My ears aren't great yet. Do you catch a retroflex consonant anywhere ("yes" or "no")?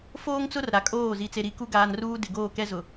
no